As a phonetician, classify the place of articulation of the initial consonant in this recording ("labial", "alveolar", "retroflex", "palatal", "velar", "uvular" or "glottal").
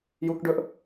palatal